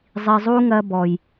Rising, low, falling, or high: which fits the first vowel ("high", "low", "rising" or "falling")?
low